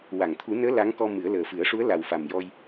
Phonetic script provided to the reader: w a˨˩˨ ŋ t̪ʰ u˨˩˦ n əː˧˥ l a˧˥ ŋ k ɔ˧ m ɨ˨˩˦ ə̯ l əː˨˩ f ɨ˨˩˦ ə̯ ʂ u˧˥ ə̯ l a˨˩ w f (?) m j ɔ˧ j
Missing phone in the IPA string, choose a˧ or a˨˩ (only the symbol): a˨˩